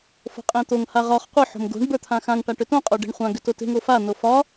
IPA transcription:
f o̤ qʼ ẽ t̪ o ŋ h a ʁ ɒ χ qʷ ə˞ ħ o̤ m ɡ o̤ ɳ b ə˞ t̪ʰ ã x ã ŋ ʈ a ʈ ʏ t õ qʼ o ɖ e̤ ɳ χʷ ã ɡ ʏ t o t e̤ ŋ o f a n o f ɒ

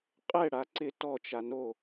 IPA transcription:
qʼ ɛ ɽ a ǀ ɪ t ɔ t͡ʃ a n o

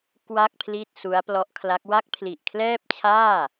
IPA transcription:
k w a˥˩ k̚ pʰ l i˥˩ t̚ s u˦˥ a̯ p l ɔ˦˥ ʔ kʰ l a˦˥ k̚ w a˦˥ k̚ pʰ l i˨˩ ʔ kʰ l ɛː˥˩ p̚ t͡ɕʰ aː˥˩

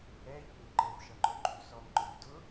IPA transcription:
ɛ ʎ u ŋ ʊ ǃ ɘ v ʃ ʌ ŋ͡ǃ o ɡ͡ǃ u s ɔ ŋ ŋ͡ǃ ʊ v d ʊ

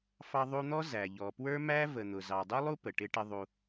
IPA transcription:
f ɑ˧ ðˤ u˧ n̪ ɔ˦ z æ˨ ʎ ɔ˨ p w ə˞˦ m æ˦ v ə˨ n̪ ʊ˨ z ɑ˨ dˤ u˦ lˠ u˦ p ə˨ ʈ ɪ˦ ʈ ɪ˦ ðˤ u˧

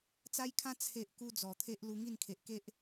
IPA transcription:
t͡s a˦ j kʰ ã˦ t͡sʰ e˦ ʔ k u˦ d͡z ɔ˨˩ t̪ʰ e˦ ʔ l u˧ ŋ i˥˧ n kʰ e˨ ʔ k e˦ ʔ

